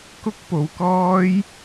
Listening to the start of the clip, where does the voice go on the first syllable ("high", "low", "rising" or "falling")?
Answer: high